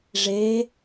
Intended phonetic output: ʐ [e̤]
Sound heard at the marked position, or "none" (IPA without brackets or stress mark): e